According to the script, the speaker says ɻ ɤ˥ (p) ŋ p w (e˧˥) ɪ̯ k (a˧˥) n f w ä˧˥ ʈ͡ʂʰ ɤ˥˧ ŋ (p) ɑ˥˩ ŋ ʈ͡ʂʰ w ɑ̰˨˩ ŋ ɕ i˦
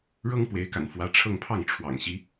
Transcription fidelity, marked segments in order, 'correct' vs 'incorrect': incorrect: none, correct, incorrect: a̰˨˩, incorrect: pʰ

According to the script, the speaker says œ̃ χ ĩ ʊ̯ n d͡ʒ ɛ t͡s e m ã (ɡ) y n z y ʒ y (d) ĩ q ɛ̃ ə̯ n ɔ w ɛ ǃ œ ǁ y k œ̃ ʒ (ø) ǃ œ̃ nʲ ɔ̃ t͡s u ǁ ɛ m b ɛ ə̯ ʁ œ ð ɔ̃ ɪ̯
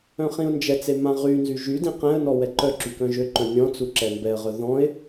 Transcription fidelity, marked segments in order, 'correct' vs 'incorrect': incorrect: ʁ, correct, correct

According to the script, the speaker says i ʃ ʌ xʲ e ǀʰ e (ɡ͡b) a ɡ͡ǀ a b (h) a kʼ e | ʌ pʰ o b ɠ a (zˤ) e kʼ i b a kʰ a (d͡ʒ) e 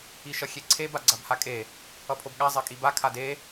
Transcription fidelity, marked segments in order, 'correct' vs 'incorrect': incorrect: b, correct, correct, incorrect: d

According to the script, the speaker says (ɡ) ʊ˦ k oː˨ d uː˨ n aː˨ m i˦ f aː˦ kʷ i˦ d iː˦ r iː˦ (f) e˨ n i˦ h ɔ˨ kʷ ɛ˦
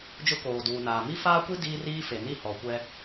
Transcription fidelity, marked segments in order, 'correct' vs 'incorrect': incorrect: d͡ʒ, correct

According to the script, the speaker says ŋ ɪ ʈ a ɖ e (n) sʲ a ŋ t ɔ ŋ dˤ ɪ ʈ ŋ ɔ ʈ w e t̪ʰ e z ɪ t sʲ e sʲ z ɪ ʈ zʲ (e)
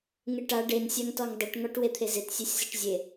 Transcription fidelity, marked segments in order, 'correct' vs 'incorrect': correct, correct

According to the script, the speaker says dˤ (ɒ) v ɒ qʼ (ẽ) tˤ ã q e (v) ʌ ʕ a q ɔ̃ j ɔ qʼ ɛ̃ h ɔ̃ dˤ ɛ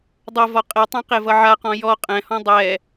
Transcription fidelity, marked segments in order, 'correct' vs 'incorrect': incorrect: ʌ, incorrect: e, correct

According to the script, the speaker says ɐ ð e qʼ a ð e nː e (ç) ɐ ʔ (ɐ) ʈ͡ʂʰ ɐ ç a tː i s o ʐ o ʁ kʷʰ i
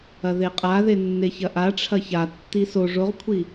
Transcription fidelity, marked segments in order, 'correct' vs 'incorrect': correct, incorrect: a

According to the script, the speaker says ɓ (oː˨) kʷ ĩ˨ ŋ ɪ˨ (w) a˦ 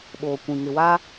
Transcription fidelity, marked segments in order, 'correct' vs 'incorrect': correct, correct

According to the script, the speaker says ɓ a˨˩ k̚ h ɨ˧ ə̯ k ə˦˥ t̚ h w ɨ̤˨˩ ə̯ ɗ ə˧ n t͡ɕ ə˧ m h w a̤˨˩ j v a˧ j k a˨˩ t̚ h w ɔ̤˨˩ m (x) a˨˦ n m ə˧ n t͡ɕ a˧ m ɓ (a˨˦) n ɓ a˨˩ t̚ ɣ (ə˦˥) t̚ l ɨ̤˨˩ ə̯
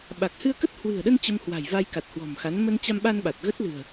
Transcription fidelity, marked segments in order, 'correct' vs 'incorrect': correct, incorrect: a˧, correct

